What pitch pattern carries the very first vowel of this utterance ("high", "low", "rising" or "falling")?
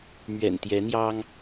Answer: low